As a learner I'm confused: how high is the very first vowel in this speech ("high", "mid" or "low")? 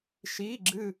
high